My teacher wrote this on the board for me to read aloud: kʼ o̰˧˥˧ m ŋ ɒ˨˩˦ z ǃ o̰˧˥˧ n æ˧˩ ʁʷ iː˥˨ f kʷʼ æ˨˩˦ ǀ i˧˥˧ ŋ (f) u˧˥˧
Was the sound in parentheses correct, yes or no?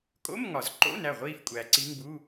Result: no